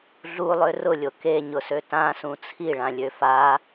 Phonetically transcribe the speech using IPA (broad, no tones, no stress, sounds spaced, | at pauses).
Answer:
ɮ u lˠ ø r ʊ lʲ o k e ɲ ʊ s ø t ã s ũ t͡sʰ i ɭ ã lʲ ø f a